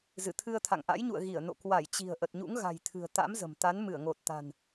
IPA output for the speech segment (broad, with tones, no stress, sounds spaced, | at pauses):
z ɨ˧˩ t̪ʰ ɨ˧ ə̯ t̪ʰ a̰˧˨ ŋ ʔ a̰˧˥ j ɲ ṵ˧˨ ə̯ ɣ i˧˩ ə̯ n o̰˧˨ k w a˧˩ j t͡ɕ i̤˨˩ ə̯ ʔ ə˨˩ t̚ ɲ ṵ˧˥ ŋ ɣ a̤˨˩ j t̪ʰ ɨ̤˨˩ ə̯ t̪ a̰˧˥ m z ə̤˨˩ m t̪ a˨˦ n m ɨ˧˩ ə̯ ŋ o˨˩ t̚ t̪ a̤˨˩ n